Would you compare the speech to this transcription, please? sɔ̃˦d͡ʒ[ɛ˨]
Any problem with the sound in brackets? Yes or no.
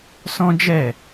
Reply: yes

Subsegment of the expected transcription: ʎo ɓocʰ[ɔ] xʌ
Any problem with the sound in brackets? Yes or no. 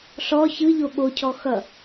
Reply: no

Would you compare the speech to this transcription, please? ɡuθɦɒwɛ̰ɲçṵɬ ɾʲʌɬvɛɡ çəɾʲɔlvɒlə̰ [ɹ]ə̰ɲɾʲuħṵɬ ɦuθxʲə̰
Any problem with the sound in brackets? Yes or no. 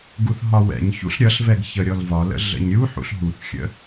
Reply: yes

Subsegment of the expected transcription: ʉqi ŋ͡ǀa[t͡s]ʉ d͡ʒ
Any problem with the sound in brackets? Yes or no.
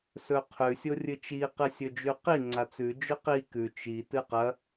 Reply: no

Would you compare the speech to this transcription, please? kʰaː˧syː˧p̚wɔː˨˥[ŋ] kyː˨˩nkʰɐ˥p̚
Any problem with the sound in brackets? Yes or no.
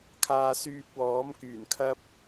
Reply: yes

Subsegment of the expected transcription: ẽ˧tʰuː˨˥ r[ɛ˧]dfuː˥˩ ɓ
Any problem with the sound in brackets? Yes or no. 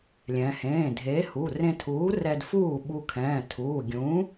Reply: no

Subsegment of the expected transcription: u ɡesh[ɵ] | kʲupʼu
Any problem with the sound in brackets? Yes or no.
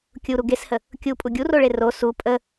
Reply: yes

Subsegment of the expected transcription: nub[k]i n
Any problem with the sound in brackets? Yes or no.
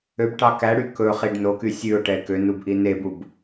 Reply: yes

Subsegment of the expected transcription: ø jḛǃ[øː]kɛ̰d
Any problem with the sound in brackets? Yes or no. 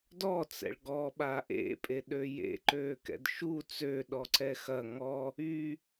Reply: no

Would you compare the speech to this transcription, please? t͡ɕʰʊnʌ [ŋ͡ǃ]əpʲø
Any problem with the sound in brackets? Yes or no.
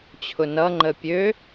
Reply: no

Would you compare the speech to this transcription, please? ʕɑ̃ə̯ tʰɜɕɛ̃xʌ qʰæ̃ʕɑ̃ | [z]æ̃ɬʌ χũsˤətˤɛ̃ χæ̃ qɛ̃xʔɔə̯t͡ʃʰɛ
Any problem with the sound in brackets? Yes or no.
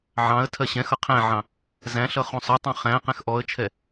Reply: no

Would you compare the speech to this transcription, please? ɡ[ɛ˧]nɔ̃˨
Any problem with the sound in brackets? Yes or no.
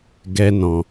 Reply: no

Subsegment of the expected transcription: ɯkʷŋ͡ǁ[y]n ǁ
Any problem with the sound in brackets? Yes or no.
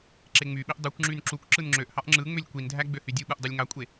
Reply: no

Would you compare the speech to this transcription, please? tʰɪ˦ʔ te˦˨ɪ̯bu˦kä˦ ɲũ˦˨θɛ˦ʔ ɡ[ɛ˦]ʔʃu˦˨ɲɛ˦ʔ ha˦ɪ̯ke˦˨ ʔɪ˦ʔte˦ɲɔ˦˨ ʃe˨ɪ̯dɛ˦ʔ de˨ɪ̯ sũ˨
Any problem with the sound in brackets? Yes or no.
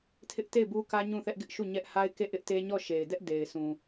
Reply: yes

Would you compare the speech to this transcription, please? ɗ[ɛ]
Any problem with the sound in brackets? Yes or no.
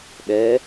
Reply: no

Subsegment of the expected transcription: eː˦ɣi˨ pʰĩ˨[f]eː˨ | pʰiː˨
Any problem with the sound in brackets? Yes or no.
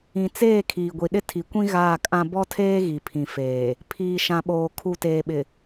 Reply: no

